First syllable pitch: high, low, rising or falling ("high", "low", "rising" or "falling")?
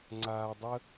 low